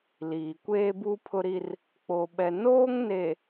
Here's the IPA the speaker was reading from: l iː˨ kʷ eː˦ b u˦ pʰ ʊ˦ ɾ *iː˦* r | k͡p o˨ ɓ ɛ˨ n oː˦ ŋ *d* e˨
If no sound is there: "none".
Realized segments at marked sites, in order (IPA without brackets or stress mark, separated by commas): i˦, n